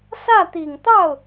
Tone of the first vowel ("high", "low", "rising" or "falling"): falling